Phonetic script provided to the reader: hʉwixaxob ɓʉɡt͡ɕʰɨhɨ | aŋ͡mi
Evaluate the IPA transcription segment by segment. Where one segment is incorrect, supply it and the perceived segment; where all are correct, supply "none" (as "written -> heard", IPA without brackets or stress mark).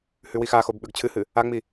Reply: none